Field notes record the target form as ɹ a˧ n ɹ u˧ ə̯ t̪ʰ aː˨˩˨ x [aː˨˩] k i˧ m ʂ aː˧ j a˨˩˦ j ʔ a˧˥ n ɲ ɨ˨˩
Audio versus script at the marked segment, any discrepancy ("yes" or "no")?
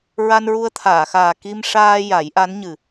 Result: no